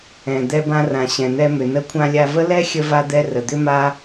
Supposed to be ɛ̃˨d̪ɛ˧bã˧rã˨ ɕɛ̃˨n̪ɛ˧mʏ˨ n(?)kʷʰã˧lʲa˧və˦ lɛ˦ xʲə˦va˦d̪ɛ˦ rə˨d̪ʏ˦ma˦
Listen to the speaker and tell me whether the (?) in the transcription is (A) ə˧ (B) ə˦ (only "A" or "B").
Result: A